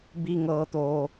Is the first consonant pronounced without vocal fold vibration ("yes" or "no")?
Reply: no